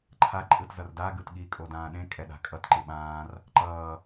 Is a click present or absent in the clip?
present